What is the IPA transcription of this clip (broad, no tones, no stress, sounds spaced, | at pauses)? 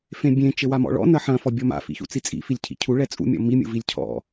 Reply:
f ẽ bʲ ẽ t͡ʃ ɘ w a m ɔ̰ ɭ ɔ̰ n ɐ ħ ɐ̃ f ɔ bʲ ɔ m a̰ f ḭ ç ṵ t͡s i t͡sʼ ḭ f i lʲ cʰ ḭ cʰ u ɭ ɛ t͡sʼ ṵ mʲ ɔ̰ m i mʲ ṵ v i lʲ cʰ ɔ̰